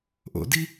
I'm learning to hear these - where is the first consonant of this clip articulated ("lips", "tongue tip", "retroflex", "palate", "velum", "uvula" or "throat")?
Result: throat